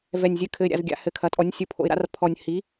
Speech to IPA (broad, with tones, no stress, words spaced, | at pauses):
vɛ˨˩nʲzʲɨ˩˧kʰɘ˨˩ɪ̯ ɾʲa̰˨˩z ɡʲa̰˩˧hɘ˨˩kʰɐ˩˧tʼɔ˩˥nʲ sʲu˩˧pʰo̰˨˩ɪ̯ɾa̰˩˥r pʰɔ˨˩nʲ hi˩˥